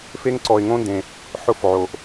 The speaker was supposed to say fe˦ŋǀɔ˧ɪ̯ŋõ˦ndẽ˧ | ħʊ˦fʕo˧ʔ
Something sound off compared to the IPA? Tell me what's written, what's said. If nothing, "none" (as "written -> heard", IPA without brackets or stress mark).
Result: none